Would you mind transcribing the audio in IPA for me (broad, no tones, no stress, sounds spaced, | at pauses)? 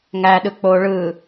ŋ æ ɗ ɯ k͡p o ɭ ɯ